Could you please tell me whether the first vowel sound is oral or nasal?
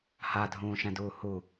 oral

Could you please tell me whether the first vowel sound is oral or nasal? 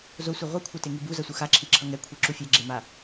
oral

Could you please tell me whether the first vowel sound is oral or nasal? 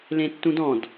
nasal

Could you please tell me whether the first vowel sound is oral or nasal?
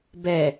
oral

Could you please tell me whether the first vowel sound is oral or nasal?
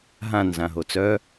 nasal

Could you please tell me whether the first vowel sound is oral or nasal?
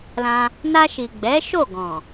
nasal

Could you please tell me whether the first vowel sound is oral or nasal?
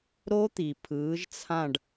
oral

